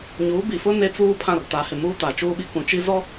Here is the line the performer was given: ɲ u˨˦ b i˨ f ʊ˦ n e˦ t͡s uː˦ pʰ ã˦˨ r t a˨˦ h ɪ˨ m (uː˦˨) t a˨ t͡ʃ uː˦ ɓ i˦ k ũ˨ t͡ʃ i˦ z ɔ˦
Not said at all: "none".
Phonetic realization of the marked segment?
uː˦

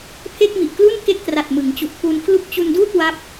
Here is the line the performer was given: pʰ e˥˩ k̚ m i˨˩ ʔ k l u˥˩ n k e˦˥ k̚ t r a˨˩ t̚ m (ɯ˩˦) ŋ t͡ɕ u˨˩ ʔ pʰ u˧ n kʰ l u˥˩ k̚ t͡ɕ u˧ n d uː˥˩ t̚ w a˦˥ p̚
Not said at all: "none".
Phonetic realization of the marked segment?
ɯ˩˦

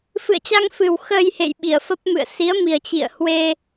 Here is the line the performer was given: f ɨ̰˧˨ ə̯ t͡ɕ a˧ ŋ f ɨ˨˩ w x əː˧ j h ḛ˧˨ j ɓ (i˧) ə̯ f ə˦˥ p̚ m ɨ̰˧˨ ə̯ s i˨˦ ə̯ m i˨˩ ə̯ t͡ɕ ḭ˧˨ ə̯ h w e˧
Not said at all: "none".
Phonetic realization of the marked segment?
i˧˩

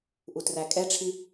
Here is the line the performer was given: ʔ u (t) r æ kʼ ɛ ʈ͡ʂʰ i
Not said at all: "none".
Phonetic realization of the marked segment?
t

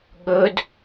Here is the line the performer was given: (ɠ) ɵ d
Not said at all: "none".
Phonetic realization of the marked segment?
ɠ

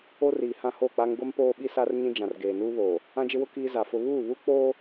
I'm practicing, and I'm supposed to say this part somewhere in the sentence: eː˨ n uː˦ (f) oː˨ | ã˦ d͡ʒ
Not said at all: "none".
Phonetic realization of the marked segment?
β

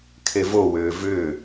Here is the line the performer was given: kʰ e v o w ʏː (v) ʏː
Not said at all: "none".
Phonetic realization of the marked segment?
v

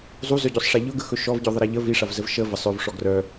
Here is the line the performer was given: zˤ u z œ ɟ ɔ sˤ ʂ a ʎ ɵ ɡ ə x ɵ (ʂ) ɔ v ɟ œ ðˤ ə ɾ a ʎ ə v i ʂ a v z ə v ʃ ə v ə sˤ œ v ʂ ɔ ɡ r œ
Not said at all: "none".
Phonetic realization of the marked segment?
ʃ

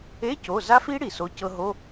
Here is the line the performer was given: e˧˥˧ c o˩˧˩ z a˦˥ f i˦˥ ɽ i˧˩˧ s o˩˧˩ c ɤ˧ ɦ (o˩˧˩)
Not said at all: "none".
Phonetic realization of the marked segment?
o˧˥˧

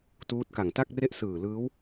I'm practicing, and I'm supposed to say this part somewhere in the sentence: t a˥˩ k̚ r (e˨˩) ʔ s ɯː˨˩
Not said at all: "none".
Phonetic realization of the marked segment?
e˥˩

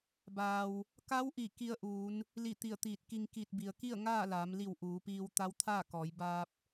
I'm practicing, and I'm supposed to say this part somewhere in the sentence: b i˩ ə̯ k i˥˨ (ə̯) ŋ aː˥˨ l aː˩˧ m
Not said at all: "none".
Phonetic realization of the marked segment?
ə̯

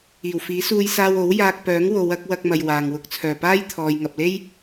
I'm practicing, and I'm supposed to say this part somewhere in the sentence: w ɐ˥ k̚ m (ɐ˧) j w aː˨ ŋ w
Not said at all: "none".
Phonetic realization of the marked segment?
ɐ˧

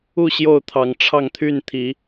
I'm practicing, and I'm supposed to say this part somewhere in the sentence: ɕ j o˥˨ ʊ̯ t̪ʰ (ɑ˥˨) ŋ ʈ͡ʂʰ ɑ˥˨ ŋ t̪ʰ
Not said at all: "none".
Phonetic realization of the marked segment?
ɑ˨˩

